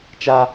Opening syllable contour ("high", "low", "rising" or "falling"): high